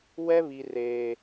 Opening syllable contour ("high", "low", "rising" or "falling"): high